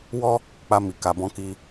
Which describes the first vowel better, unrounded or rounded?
rounded